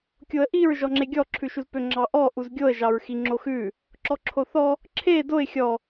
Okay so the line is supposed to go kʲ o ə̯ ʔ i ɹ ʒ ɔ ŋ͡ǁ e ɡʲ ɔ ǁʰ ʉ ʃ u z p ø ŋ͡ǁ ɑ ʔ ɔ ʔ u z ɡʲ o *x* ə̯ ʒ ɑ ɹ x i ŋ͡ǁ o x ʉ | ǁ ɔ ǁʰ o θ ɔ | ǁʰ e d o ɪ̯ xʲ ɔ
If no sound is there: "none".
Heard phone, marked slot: none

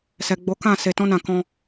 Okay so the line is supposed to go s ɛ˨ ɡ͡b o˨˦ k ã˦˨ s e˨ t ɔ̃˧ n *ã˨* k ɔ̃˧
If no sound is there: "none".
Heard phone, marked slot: ã˨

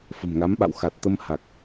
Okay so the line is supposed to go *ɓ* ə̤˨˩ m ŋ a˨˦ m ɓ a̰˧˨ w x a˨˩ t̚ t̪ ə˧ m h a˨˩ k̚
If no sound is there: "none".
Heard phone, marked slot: f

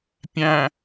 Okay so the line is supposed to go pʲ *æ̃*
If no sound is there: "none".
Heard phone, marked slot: æ̃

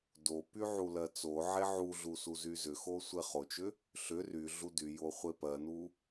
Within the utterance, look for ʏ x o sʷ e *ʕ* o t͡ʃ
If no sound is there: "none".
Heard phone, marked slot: χ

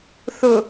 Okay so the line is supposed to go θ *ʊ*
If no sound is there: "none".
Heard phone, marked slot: ʊ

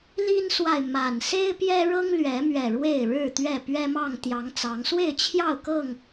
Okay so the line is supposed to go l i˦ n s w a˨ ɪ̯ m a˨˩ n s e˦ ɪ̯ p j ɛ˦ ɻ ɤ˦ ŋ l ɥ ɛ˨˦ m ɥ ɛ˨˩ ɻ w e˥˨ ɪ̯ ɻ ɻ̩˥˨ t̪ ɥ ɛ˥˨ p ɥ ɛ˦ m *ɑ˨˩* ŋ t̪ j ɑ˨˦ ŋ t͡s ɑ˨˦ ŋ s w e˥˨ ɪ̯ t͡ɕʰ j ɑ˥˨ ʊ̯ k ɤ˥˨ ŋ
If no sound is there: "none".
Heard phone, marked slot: ɑ˥˨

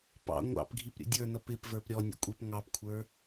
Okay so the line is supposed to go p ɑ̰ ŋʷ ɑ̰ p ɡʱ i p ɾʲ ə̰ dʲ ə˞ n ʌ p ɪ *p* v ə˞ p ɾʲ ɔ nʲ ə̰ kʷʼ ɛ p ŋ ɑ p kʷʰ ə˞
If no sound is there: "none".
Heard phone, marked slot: p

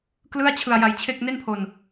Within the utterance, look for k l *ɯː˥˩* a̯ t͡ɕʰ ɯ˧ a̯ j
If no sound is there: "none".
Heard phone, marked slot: ɯ˥˩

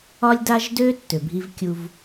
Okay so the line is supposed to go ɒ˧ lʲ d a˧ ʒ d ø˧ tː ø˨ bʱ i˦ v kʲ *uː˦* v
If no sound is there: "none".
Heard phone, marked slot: u˦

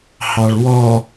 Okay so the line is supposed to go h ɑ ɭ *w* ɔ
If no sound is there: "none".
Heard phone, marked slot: w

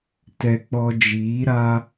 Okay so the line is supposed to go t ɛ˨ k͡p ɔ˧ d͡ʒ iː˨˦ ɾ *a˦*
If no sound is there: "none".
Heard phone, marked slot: a˦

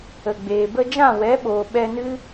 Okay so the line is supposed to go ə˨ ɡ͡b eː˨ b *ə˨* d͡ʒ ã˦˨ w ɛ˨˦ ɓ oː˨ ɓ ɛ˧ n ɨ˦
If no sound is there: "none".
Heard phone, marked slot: ə˧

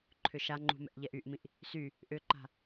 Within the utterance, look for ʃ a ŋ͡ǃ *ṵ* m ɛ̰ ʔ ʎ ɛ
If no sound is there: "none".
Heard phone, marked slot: ṳ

